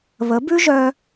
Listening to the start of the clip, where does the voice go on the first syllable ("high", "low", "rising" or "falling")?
rising